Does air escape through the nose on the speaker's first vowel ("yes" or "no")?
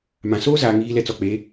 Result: yes